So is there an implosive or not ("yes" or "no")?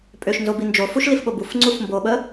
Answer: yes